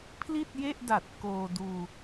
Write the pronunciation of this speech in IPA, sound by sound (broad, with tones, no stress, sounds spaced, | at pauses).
pʰ l i˥˩ t̚ j e˥˩ ʔ d a˨˩ t̚ k oː˧ d uː˧